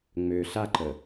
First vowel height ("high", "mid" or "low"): mid